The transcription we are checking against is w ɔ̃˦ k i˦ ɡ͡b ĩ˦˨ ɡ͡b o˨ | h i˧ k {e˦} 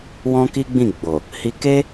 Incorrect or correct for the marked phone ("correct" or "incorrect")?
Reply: correct